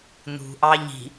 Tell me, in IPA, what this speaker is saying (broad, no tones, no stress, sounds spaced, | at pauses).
n̪ ṳ ʔ ɑ ʎ i̤